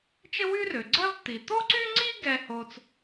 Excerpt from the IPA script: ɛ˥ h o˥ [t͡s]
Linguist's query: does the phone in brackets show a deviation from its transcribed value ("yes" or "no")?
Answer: no